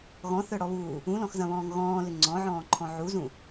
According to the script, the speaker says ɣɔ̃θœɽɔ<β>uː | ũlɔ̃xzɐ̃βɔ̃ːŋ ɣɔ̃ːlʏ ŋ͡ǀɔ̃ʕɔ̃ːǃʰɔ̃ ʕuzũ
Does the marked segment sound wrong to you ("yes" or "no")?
no